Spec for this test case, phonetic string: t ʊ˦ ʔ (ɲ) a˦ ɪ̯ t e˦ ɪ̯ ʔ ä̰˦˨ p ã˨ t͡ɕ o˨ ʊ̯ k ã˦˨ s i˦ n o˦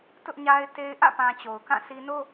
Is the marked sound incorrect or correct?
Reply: correct